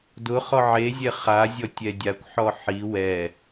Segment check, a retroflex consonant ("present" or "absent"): absent